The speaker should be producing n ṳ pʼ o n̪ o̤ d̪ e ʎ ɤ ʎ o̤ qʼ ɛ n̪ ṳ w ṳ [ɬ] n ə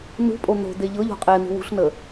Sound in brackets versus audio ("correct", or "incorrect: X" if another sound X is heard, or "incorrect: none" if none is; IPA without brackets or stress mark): correct